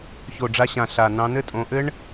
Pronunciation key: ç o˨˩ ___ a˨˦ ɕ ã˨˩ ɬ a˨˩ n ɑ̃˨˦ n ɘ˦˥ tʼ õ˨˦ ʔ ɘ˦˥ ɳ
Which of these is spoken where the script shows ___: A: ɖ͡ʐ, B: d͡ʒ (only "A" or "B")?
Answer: A